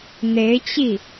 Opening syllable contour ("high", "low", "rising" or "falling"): rising